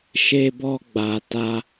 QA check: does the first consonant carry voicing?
no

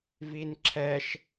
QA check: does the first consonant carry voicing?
yes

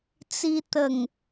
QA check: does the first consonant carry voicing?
no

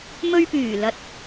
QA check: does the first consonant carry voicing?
yes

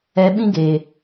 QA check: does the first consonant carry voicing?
yes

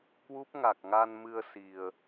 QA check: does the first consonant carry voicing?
no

